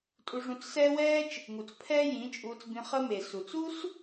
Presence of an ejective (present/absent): present